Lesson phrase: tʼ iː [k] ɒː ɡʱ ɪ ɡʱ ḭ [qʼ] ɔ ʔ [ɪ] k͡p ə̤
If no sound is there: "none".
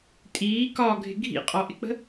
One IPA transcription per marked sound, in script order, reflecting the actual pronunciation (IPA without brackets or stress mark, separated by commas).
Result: k, qʼ, ɪ